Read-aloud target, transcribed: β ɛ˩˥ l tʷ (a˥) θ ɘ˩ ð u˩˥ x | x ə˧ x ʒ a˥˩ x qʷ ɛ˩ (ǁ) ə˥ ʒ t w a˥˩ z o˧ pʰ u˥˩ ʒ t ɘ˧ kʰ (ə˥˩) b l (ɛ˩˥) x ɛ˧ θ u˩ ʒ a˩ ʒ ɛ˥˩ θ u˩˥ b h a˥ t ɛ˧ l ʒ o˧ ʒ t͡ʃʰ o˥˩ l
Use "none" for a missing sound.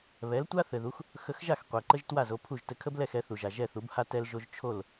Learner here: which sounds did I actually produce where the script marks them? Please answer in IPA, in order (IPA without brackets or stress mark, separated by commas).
a˥, ǃ, ə˥, ɛ˥˩